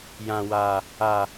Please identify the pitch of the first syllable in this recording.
low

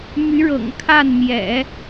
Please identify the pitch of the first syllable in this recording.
rising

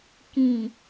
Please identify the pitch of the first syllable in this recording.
low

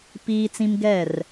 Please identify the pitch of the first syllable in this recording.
high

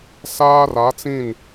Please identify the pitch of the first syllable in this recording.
high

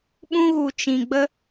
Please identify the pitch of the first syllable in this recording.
high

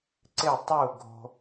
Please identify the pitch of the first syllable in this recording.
falling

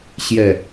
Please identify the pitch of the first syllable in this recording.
low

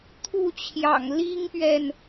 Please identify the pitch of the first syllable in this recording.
falling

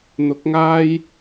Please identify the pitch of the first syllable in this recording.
rising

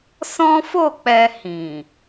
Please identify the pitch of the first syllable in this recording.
high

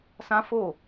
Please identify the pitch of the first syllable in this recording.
high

